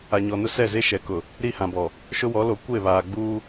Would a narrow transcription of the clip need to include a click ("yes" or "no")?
no